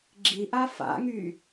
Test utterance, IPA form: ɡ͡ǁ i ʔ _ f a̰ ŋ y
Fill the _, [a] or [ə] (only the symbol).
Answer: a